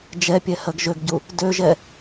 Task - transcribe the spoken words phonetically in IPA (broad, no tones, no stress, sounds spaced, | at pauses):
d͡ʒ ɛ pʲ ɛ h ɜ ɡ ʒ ø ɡ ɟ u | d ø ʒ ɛ